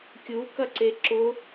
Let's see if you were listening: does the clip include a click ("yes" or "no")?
yes